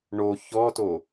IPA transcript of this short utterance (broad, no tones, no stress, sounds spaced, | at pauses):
ɳ o ç ɔ t o